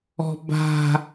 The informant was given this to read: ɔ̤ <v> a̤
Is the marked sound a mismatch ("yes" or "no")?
yes